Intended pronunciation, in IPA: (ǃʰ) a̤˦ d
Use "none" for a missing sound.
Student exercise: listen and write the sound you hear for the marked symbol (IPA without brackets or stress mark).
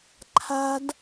ǃʰ